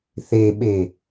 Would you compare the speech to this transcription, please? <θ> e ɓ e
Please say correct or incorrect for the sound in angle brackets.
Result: correct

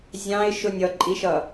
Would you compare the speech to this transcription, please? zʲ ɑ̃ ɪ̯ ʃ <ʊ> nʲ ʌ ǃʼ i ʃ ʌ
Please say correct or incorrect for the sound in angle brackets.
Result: correct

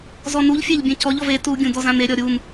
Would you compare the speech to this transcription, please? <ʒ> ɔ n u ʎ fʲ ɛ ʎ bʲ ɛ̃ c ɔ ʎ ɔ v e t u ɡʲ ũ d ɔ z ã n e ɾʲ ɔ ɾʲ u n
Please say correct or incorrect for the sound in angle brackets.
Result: incorrect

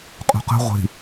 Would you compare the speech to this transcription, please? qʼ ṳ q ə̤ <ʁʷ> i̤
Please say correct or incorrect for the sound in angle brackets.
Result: correct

